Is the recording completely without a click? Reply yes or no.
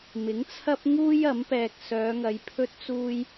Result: yes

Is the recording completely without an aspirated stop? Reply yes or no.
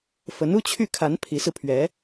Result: no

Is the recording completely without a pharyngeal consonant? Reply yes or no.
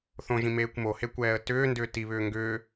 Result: yes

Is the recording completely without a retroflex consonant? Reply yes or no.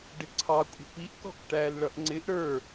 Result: no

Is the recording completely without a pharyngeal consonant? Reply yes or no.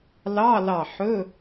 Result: no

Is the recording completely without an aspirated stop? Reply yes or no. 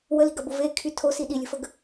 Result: no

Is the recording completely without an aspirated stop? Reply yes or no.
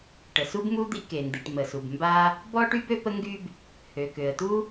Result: yes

